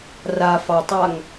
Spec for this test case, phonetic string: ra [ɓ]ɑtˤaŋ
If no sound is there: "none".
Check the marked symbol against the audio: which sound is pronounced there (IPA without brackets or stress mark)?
f